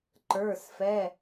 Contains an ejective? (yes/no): no